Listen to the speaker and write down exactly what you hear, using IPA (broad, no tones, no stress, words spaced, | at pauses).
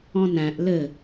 ɔ̃næ̃ʔ lɘ